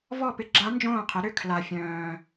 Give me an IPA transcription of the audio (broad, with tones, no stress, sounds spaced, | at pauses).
v ɔ˥˩ p ɪ˧˥ ɡ͡ǁ a˧˥ n d͡ʒ õː˥˩ qʰ ɪ˩˥ ɾ ʏ˥˩ kʰ l a˨˩ fʲ œ̃ː˨˩